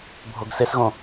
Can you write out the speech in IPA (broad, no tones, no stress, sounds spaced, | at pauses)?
bʱ o ɡ s e s ɣ õ